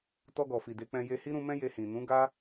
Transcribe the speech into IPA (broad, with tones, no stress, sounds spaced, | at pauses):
t ɔ˧ ɡ ɔ˨ f i˨ d e˨˦ k͡p ɛ̃˧ j e˧ h i˦ ɾ ũ˧ m ɛ̃˦ j e˧ h ĩ˨ n ũ˨˦ ɡ a˦